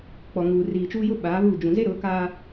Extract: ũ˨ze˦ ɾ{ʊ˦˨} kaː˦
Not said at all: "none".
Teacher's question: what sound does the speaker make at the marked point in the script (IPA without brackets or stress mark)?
ʊ˨˦